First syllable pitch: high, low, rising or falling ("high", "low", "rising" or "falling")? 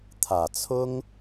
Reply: low